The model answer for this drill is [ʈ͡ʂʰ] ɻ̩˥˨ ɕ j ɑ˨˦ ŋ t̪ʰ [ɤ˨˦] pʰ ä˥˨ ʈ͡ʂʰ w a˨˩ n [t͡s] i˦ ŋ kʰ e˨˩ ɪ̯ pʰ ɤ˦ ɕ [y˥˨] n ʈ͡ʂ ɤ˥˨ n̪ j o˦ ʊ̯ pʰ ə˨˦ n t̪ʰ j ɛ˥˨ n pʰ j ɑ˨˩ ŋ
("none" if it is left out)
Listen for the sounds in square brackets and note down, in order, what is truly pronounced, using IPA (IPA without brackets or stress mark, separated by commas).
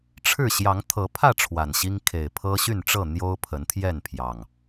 ʈ͡ʂʰ, ɤ˨˦, ɕ, y˥˨